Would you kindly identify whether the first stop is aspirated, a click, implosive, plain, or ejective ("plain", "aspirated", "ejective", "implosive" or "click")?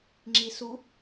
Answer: click